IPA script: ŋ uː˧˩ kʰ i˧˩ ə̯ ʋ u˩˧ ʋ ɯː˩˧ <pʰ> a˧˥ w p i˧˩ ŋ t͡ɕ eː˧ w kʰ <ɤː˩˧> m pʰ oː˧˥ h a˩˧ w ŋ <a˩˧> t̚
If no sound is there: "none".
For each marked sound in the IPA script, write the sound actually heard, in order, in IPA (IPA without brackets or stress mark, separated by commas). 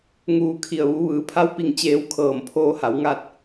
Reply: pʰ, ɤː˧˩, a˥˨